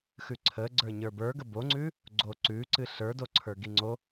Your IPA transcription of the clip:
x ʉ ǀʰ ə ɡ͡ǀ ə˞ ɲ ə˞ b ə˞ ɡ ə b o ŋ͡ǀ ʉ | ɡ͡ǀ o ǀ ʉ ǀ ɨ ɬ ə˞ d o ǀʰ ə˞ ɡ i ŋ͡ǀ o

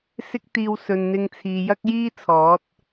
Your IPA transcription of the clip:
s ɪ˥ k̚ t̪ iː˧ w s ɵ˨ n n̪ ɪ˧ ŋ t͡sʰ iː˨ j ɐ˥ k̚ j iː˥ t͡sʰ ɔː˨˥ t̚

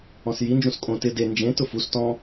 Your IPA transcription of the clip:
ɔ̃ s j i n d͡ʒ ũ s kʼ õ t ɪ d e n d͡ʒ ẽ t ʊ f u s t ɔ̃

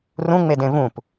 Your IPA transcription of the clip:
r ũ ŋ͡m e d ẽ v ũ p

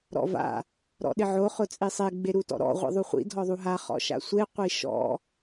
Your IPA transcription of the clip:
ɾ ɔ̰ v a̰ | ɾ ɔ̰ ɗ ɪ ʕ o χ ʊ t͡sʼ i sˤ e ɡ͡b e ɾ u t ɔ̰ ɾ ɔ̰ ʁʷ ḭ ðˤ u χʷ ḭ dʱ ɔ ðˤ u ɦ a χ ɔ̰ ʃ a̰ sʷ e qʷ i ʃ ɔ̰

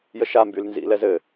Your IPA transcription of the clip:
j ə ʃ a m b y l n z ḭ l ɛ z ɘ

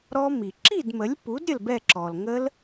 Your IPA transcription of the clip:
ɾ ɔ˦˥ m i˩ ǁ i˥˩ d m ə˩˥ lʲ p u˩˥ d ɾʲ ə˥˩ l b ɛ˥˩ ǁ ɔ˩ l ŋ ə˦˥ l

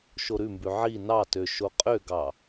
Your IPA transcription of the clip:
ʃ o ɾ ʉ m b ʉ ʕ i n ɑ t ø ʃ o qʼ ø ɡ ɑ

